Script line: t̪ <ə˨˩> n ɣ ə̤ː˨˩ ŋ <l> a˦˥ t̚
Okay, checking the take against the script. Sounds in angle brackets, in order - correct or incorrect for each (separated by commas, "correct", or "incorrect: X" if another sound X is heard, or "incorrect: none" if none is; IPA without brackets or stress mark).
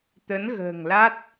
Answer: incorrect: ə˨˦, correct